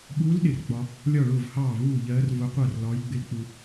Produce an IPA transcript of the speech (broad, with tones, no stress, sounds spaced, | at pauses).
ɓ uː˧˥ l ɗ ɪ˨ r ɡ͡b ɒ˨ | lʲ ɒ˥˩ ɭ ʊː˥˩ v h ɑː˥˩ v uː˥˩ ʎ ɜː˧˥ r v ʊ˧˥ qʷ ɜ˥˩ r l ɒː˧˥ j ɡ͡b ɪ˧˥ l k͡p u˨